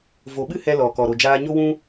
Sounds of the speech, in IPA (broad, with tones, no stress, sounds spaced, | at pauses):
v o˨ ɓ ɨ˦ h ɛ˧ l ɔ˨ k ɔ˨ ɾ o˨ d͡ʒ aː˧ ɲ o˦ w ũ˦